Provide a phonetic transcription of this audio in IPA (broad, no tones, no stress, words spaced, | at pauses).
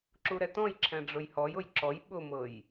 ǁuɾɛtɔ̃jǁʰɛ̃ ɖ͡ʐʊjhɔjʊj ǁɔj ɓʊmɤj